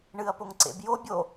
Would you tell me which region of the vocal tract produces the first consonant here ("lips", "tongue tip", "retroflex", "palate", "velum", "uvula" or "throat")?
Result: retroflex